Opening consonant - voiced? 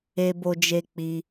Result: yes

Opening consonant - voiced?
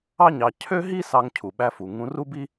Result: yes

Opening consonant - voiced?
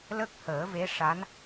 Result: yes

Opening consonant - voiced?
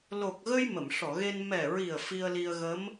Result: yes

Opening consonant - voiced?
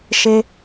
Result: no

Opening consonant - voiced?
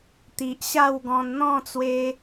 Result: no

